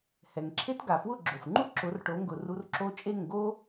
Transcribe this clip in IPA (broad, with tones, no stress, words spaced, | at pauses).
hɛ˩ŋǁʰe˥t ɡa˩fwʊ˥˩ɡ͡ǁo˩fŋ͡ǃu˥ ǁʊ˩˥rʈo˩˥ŋɡʊ˩ru˧r ǁo˧ t͡ʃʼe˥˩ŋɡo˥